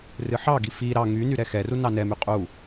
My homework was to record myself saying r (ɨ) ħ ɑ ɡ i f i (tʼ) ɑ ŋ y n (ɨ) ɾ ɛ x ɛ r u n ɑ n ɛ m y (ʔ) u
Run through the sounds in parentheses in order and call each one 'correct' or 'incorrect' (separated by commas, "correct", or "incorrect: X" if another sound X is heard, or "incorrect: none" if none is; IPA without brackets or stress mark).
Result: correct, incorrect: ɾ, incorrect: y, incorrect: qʼ